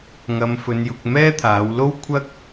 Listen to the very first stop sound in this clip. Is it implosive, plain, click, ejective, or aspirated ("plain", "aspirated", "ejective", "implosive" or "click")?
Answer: plain